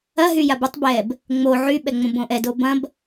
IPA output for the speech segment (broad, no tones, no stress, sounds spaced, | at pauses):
ɐ ɦ y j a b ɵ tˤ b ɛ b | ŋ͡m o ʕ y ɓ ɛ ŋ͡m õ b õ ʔ ɛ d o b ɐ̃ b